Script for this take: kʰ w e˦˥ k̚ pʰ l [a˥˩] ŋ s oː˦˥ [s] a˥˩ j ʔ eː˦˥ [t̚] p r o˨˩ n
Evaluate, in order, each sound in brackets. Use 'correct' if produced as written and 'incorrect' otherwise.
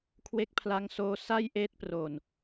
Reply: incorrect: a˦˥, correct, correct

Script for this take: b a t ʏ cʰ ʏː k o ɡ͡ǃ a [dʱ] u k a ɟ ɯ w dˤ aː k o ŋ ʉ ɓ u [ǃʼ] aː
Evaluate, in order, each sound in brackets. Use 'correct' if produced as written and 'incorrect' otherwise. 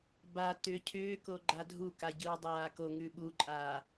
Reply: correct, correct

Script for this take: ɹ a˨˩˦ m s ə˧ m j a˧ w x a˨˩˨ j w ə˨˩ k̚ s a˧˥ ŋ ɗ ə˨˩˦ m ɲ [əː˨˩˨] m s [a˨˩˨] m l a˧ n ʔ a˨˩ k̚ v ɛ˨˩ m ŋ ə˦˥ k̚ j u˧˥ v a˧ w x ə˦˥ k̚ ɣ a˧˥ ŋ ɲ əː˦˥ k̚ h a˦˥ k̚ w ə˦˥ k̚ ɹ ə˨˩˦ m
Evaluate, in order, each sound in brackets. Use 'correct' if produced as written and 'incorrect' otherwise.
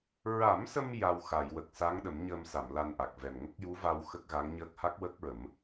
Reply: incorrect: əː˧, correct

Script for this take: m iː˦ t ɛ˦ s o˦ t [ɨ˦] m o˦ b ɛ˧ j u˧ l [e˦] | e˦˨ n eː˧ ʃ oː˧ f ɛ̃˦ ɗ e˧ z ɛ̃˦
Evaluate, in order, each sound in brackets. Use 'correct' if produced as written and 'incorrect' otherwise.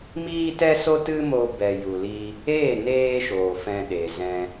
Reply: correct, incorrect: i˦

